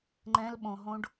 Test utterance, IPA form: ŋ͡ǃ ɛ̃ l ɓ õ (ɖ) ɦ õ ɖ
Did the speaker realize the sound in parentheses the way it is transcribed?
no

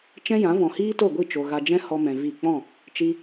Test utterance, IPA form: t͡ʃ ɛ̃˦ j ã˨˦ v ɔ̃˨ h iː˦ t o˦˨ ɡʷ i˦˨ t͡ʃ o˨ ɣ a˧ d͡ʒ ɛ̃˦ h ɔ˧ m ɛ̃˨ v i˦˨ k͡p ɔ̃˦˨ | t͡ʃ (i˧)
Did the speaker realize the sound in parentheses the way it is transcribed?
yes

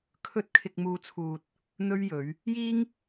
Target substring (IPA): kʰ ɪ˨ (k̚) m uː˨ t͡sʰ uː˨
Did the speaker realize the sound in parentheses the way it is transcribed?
yes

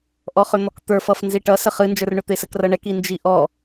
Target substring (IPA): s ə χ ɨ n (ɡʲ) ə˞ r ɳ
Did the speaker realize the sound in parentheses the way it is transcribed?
no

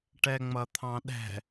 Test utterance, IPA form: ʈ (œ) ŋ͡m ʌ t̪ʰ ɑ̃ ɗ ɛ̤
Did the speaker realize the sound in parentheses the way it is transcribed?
no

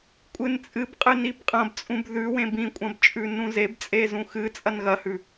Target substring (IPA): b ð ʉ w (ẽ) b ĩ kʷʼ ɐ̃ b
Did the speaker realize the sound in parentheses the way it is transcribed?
yes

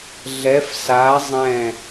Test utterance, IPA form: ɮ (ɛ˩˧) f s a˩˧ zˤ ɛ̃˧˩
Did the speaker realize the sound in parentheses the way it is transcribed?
yes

